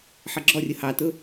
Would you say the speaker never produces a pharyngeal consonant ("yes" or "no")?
no